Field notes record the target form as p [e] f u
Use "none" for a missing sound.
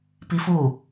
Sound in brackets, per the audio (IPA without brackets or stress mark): i